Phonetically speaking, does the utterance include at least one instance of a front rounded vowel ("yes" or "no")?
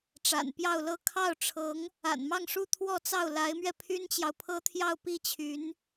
yes